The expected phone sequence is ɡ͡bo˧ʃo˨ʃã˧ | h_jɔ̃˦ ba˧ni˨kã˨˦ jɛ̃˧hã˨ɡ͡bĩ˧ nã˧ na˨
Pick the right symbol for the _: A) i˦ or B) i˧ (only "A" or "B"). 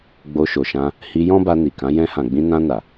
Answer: B